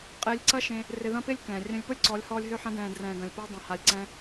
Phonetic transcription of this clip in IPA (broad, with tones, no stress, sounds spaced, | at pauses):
qʼ ɪː˧ lʲ ǀ ɐ˦ ʃ ẽ˧ | r ɪ˧ ð ɐ̃˦ p ɪː˦ lʲ k ɛ̃ː˨ rʲ œ̃˧ lʲ p ʊ˦ lʲ ǀ ɔ˨˦ lʲ h ɔː˧ lʲ ɦ ø˧ ħ ɐ̃˧ d ɛ̃ː˨ d r ɛ̃ː˨ ɡ ɐ̃˨ lʲ p ʊː˧ dˤ ɐ̃˨ h a˨ lʲ ǀ ɛ̃˧